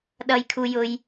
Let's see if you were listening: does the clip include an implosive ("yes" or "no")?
yes